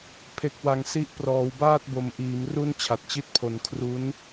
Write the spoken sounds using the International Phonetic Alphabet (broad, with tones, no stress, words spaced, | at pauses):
pʰe˨˩k̚wa˨˩ŋ si˦˥ʔ prɔː˩˦wbaː˥˩t̚bo˨˩mʔiː˩˦m ru˦˥n t͡ɕʰa˨˩t̚t͡ɕi˦˥t̚pʰo˨˩n kʰru˦˥n